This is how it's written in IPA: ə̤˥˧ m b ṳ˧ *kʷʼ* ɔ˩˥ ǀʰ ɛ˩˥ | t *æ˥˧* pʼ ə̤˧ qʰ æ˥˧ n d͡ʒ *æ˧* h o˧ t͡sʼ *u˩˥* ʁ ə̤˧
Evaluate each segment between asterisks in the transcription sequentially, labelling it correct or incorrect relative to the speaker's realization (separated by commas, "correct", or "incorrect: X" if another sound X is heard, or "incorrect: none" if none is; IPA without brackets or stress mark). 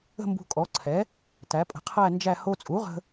incorrect: kʼ, incorrect: æ˩˥, incorrect: æ˥˧, correct